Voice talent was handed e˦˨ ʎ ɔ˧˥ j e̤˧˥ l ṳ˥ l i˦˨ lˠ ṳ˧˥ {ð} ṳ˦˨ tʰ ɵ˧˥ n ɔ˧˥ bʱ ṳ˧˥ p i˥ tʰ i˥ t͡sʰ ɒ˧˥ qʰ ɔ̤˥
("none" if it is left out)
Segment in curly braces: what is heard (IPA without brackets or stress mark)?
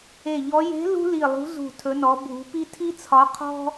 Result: z